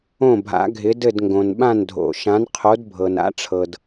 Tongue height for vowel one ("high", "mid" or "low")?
mid